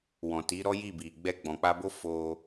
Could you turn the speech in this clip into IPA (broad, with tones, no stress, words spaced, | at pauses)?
wɔ̃˨ti˨˦ɾɔ˦ ji˦˨bi˨ ɡ͡bɛ˧ɡ͡bɔ̃˨k͡pa˧bo˦ fo˧